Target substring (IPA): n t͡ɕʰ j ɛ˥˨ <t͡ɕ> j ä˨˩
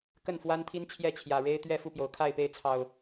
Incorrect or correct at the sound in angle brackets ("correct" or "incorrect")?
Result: incorrect